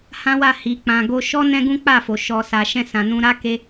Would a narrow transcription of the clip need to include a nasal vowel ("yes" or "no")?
yes